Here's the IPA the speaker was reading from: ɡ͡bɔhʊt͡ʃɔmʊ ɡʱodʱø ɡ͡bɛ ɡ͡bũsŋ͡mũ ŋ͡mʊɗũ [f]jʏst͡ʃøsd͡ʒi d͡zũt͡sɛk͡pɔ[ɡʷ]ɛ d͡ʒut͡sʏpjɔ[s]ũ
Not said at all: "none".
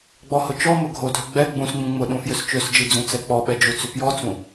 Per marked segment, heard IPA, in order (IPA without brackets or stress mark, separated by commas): f, ɓ, t͡s